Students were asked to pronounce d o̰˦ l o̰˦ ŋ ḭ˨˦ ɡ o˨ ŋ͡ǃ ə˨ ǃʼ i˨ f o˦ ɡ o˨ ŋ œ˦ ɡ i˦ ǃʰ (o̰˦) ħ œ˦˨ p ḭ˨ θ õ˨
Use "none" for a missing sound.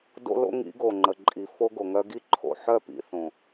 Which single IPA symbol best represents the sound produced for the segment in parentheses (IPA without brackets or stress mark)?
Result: o̰˨